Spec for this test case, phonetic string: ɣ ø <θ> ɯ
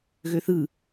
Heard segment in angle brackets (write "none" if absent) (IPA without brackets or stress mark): θ